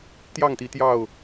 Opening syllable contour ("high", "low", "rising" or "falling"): falling